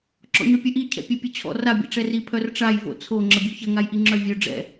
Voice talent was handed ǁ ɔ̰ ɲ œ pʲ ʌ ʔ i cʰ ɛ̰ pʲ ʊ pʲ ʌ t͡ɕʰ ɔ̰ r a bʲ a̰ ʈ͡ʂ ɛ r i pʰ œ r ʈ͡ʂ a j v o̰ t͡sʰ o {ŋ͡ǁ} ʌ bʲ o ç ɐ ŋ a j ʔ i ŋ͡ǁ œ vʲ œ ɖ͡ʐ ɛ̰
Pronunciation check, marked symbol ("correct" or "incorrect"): correct